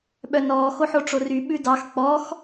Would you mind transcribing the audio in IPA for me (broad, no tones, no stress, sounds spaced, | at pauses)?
ɓ œ n ɔː x o ħ o ʈ͡ʂ o r y ɓ ʉ d ɑ x k͡p ɔ x